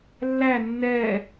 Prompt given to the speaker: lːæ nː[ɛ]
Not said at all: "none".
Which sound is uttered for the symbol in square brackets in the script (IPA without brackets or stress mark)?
ɛ